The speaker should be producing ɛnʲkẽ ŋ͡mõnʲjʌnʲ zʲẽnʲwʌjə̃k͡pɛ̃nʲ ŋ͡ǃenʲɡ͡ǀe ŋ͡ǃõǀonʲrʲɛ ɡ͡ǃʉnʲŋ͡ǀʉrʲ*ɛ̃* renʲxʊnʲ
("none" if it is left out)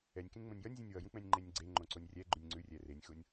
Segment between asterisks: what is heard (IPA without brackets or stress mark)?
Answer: ɛ